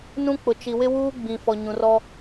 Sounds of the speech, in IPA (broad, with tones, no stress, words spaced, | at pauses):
nũ˦k͡pʊ˨ t͡ʃi˨ wɪ˦wuː˦ ɡ͡bĩ˨fɔ˨ ɲũ˨rɔ˦